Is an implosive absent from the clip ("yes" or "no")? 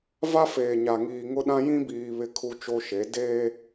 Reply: no